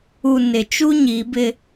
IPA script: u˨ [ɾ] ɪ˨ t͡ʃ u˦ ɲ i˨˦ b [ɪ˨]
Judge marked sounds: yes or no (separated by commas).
no, no